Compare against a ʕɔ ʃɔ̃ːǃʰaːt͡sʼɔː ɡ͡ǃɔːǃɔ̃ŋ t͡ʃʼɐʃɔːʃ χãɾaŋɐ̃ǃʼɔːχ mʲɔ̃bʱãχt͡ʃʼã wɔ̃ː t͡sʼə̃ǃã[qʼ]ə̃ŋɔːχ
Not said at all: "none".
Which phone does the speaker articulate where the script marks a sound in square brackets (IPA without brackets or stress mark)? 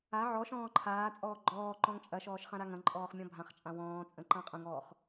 qʼ